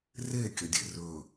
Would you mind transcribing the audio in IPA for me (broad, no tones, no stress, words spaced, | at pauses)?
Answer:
re kʲɐdʲḛrɵ